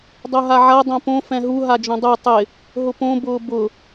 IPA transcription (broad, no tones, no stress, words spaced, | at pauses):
dˤoɦaʕa dˤõpõ fɛ̃ɦu ɦad͡ʒõdˤu tˤɪ | ɦʊpõ bʊːbʊ